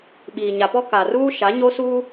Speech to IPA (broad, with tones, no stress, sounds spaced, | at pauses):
ɓ iː˨ ɲ a˨ p ɔ˦ k a˨ r uː˦ ʃ a˨˦ ɲ o˦ s uː˦